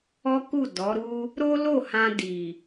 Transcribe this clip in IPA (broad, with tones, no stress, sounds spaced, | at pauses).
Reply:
ɔ˦ k u˦˨ d ɔ˨˦ ɾ u˦ | ɾ o˦ l o˦˨ h ã˧ d i˨